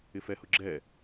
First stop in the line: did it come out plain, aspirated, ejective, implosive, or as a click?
click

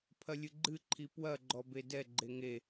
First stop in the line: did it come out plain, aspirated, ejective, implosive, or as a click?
aspirated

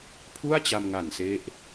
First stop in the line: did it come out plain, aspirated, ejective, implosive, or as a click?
aspirated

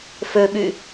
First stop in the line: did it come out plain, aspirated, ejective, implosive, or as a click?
implosive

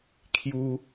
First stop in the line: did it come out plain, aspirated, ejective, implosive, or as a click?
aspirated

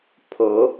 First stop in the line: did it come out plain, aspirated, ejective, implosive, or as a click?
aspirated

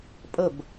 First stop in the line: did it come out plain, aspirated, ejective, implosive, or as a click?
ejective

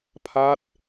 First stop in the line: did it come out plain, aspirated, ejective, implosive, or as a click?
aspirated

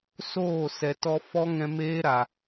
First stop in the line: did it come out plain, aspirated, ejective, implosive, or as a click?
plain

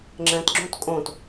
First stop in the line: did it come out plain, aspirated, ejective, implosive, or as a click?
click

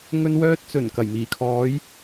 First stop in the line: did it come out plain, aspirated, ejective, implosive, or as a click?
plain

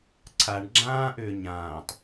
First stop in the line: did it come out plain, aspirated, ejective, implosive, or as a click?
click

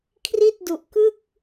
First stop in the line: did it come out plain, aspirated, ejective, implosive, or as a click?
aspirated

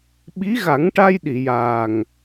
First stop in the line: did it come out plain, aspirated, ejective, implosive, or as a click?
implosive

